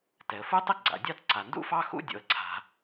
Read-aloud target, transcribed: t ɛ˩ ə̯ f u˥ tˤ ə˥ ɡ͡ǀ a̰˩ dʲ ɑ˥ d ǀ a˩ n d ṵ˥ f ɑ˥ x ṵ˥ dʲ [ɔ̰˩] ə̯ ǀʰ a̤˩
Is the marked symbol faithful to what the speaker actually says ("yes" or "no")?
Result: no